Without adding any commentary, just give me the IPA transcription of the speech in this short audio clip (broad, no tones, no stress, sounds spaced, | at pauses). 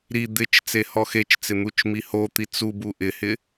ɾ i d̪ ɪ t͡ʃ t͡s e h ɔ x e t͡ʃ t͡s ɪ n̪ u t͡ʃ m i h o t̪ i t͡s u b u ʔ ɪ h ɪ